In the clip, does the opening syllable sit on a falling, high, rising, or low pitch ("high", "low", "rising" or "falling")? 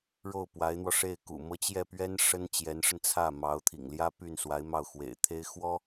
falling